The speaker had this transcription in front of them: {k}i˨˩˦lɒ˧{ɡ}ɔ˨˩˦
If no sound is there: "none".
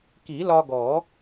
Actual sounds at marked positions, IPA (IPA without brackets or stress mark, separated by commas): k, ɡ